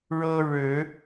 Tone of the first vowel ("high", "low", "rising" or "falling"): high